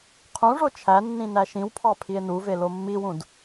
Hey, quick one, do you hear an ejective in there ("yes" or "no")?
no